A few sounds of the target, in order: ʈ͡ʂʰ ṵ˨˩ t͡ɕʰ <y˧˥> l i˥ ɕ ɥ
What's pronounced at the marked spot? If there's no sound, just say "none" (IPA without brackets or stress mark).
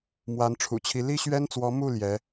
i˧˥